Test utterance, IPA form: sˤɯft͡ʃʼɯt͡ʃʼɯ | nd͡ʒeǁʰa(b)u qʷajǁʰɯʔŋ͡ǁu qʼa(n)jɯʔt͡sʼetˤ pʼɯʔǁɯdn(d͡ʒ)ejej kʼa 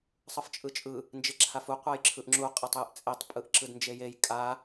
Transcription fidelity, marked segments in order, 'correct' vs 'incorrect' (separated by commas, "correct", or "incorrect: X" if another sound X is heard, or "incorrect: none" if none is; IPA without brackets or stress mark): incorrect: f, incorrect: tˤ, correct